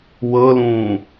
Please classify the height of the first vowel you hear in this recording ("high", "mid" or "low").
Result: mid